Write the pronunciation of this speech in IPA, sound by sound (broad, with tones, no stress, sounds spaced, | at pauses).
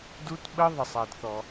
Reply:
d u˧˥˧ t ɓ ə˦˥ ðˤ ə˩ sˤ a˩ d θ ɔ˩